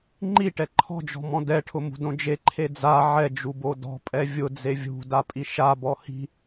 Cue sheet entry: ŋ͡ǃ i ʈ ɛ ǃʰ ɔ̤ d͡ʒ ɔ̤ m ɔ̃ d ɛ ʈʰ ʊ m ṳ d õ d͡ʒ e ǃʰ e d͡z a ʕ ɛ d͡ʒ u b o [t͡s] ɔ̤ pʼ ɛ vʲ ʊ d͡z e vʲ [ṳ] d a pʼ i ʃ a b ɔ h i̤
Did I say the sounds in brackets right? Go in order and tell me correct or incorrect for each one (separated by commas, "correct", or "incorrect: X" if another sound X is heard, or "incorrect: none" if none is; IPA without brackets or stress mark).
incorrect: d, correct